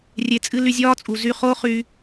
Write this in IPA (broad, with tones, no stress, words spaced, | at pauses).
rʲe˧t͡sʼɨ˦ ly˧zʲɒː˦t͡sʼu˨ zy˧χo˦χy˧